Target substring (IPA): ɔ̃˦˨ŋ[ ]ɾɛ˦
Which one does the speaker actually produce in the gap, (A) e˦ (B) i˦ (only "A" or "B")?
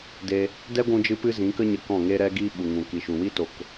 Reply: A